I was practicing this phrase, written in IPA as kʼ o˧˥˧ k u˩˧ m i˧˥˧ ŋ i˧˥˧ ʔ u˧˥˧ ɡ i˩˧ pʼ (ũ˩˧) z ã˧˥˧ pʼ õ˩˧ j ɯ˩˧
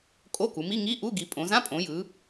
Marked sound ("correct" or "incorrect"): incorrect